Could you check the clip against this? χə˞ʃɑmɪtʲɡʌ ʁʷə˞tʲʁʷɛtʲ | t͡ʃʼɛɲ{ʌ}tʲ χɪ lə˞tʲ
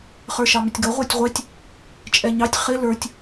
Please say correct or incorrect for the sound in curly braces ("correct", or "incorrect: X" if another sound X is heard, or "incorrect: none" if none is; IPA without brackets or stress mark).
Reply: incorrect: ɑ